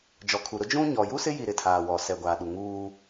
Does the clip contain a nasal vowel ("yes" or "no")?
yes